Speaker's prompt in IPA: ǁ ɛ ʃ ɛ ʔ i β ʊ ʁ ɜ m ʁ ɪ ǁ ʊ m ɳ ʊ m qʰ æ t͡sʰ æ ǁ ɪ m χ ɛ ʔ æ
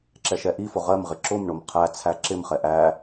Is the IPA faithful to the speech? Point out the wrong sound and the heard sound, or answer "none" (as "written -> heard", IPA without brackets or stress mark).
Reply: β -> f